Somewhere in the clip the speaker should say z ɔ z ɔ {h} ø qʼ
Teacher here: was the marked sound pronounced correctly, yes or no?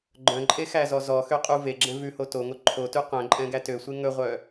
no